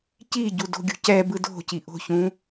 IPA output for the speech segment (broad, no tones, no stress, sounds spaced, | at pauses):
c i ɟ u d o̤ ɡʲ ṳ c ɛ b ɯ d o̤ c i ʔ o̤ ç ũ